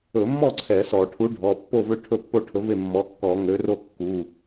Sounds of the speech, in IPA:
ɵ˧˩˧mːɔ˥˨ ǀʰɛ˧˩˧sɔ˧˩˧ ʈʰu˨˥ ɖʱɔ˩˧˩pːo˥˨vø˥˨ ʈʰɵ˥˨pːo˥˨ʈʰɵ˨˥ve˥˨ mːɔ˨˥kːɔ˧˩˧ŋø˨˥ro˥˨ kːu˩˧˩

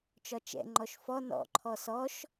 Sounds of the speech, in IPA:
t͡ʃɒt͡ʃɛ̰ ŋ͡ǃɔʃfɔ nɔ̰ ǃʰɔsɔʃ

